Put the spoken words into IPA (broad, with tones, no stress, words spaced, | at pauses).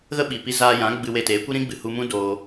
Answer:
ɣə˦ɓi˨pi˧ zaː˧jã˨˦ ɡ͡bɨ˧we˧teː˨˦kʷi˦ ɾĩ˦ɡ͡bɨ˨hu˧mũ˦ doː˧